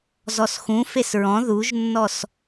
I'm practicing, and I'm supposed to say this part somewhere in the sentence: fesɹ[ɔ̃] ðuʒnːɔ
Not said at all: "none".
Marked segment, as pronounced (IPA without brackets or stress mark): ɔ̃